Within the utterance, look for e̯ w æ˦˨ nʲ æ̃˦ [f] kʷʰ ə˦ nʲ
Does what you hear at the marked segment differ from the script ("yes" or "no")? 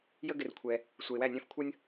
no